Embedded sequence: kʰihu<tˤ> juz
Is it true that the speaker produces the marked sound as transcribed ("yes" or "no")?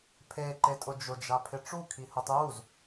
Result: yes